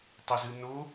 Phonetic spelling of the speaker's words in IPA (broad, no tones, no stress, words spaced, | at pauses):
tˤɘzɨno